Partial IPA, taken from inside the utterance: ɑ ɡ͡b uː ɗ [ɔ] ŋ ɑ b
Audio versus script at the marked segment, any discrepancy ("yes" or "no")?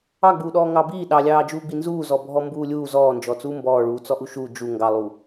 yes